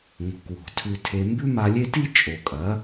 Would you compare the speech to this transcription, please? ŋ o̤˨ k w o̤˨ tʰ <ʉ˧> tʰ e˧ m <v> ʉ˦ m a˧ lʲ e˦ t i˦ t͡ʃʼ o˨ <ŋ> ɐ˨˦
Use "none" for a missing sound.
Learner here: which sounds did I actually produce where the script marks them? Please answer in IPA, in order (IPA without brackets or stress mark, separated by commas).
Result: ʉ˧, b, kʼ